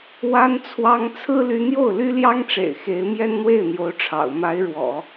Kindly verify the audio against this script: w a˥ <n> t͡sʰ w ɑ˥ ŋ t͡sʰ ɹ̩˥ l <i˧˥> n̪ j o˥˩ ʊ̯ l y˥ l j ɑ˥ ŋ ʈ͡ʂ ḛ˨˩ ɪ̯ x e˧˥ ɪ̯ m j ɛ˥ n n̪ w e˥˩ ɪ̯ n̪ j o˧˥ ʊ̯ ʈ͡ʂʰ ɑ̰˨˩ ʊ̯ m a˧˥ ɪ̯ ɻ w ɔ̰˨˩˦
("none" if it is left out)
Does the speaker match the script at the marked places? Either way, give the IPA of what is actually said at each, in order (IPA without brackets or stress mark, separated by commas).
n, y˧˥